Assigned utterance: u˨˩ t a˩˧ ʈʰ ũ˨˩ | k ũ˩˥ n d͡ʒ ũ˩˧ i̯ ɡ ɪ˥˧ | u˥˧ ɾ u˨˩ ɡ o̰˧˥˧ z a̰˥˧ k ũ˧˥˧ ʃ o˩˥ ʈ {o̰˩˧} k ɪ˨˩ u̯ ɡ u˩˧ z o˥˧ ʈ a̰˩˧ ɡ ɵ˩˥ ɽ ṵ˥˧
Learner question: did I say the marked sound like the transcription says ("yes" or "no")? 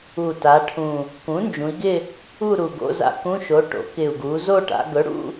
yes